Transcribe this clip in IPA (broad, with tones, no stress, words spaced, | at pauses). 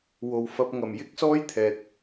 wo˨wfɐ˧p̚ ŋɐ˨˩m jɪ˥k̚sɔː˥jt̪ʰɛː˨t̚